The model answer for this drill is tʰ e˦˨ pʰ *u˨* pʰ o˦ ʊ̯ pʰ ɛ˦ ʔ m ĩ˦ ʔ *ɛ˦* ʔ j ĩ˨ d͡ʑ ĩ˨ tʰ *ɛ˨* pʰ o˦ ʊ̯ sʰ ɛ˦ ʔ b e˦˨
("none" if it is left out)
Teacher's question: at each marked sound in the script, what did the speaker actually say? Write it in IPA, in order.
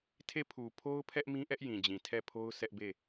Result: u˨, ɛ˦, ɛ˦˨

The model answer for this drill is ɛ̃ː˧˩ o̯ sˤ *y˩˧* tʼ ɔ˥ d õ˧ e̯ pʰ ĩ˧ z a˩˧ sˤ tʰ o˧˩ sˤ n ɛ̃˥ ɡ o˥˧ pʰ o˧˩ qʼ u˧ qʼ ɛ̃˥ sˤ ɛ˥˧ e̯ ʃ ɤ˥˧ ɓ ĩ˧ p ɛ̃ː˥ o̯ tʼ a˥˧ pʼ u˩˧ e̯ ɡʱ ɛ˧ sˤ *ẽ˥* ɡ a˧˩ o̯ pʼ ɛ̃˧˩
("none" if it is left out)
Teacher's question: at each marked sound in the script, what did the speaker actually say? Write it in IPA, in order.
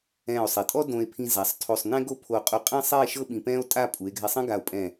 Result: e˩˧, ẽ˥

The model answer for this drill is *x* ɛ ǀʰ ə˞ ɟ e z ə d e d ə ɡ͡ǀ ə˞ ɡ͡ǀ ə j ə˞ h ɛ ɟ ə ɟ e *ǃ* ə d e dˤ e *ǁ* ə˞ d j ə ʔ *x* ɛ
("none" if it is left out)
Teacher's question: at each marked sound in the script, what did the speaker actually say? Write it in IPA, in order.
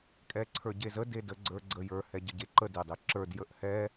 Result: kʼ, ǃ, ǁ, h

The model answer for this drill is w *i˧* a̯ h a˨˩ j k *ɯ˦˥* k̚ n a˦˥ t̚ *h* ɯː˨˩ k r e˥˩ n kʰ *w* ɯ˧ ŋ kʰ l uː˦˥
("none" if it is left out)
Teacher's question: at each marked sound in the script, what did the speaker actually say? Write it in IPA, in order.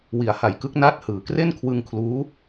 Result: i˨˩, ɯ˦˥, h, w

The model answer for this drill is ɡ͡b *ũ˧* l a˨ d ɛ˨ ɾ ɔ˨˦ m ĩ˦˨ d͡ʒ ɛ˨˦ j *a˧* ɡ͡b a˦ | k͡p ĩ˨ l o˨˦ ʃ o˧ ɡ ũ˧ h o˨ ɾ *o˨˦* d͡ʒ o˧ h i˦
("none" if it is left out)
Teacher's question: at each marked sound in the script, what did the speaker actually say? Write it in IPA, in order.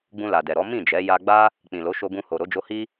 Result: ũ˧, a˧, o˨˦

